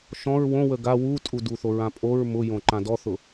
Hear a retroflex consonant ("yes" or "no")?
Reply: no